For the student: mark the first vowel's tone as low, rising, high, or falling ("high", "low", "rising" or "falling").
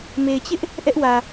low